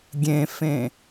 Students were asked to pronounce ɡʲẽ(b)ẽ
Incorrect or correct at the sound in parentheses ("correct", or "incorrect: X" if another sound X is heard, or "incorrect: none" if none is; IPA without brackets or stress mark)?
incorrect: f